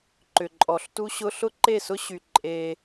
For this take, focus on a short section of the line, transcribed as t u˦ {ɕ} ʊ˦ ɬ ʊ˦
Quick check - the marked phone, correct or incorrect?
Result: correct